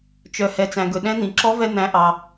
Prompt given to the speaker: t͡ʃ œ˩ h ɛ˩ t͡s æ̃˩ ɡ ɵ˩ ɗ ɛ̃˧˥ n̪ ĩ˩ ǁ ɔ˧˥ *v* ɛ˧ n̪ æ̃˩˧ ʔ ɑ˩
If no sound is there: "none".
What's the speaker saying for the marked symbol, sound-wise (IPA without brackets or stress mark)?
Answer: v